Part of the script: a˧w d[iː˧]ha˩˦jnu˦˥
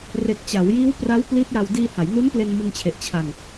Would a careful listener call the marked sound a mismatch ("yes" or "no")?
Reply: no